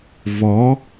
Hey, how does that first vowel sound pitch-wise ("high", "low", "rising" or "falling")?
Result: rising